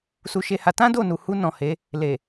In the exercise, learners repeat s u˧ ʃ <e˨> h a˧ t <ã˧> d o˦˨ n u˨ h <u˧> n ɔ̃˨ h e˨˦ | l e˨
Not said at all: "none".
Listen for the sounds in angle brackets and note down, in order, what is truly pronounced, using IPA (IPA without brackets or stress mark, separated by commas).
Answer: e˧, ã˦, u˧